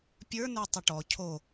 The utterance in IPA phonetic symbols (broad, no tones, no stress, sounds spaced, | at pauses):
pʲ ə˞ n ə˞ tˤ ə ʈ ɔ cʰ o